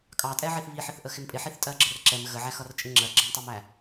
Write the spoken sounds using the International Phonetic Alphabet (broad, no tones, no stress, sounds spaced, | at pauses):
kʼ ɑ tʼ ɛ ʕ i θ β i ħ ɪ θ ʔ ə x ɪ m pʼ ɪ ħ i θ tʼ ɜ ɡ͡ǁ ə r ǁ ɛ m ɣ ə ʕ æ x ʌ r t͡ʃʼ ɪ ŋ͡ǁ ɜ ɡ͡ǁ ɜ m tˤ ɜ m æ